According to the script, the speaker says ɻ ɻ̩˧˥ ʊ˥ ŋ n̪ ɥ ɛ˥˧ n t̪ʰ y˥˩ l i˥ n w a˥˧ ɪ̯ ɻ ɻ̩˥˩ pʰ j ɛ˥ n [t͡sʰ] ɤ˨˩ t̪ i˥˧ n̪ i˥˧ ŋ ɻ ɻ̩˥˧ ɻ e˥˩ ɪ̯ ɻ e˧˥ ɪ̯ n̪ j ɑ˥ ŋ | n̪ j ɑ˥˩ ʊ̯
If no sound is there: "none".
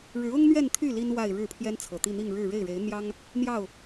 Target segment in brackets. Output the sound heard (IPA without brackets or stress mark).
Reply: t͡sʰ